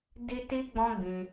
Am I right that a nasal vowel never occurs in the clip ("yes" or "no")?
no